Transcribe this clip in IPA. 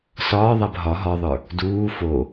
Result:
s ɒː ðˤ æ b ɦ ɒ ɦ ɒ ðˤ ə˞ | d uː f o

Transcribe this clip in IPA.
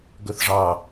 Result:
ɡ ɵ θ ʐ ɑ

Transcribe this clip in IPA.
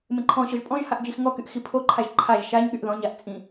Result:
m ẽ ǃʰ ɔ̃ ɕ ɔ ʒ pʼ ɔ̃ ʒ h a ʔ d͡ʒ i x ŋ ɔ k y ʔ x i pʰ o ǃʰ a ʒ ǃʰ a ʒ ʃ a ɲ ɠ y ʔ ð ɔ̃ ɲ a ʔ t͡sʼ ĩ

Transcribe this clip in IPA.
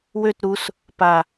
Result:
w ø t ɾ u s | p a

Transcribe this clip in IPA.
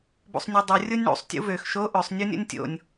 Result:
b ṵ sˤ nʲ ø dˤ u rʲ o nʲ ɳ ṵ sˤ tʲ ṵ v ø x ʃ o ʔ ø sˤ nʲ u nʲ o̰ nʲ tʲ o̰ nʲ

